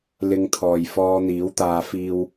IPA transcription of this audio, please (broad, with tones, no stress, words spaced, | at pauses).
lɪ˧ŋt̪ʰɔː˨jfɔː˧ n̪iː˨˥wt̪aː˧ fiː˧w